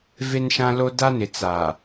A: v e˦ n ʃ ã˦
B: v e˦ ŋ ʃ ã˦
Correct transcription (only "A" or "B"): A